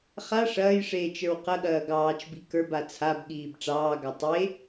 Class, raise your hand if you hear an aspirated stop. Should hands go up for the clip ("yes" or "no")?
yes